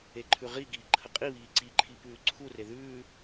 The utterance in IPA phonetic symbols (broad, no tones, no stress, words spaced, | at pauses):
eǃʰʉʁiɡiː ǃʰəqʼiβiː ǀiǃʰi pʉːǀʰure ðʉː